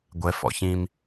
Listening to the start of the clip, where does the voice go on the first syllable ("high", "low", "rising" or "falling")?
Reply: rising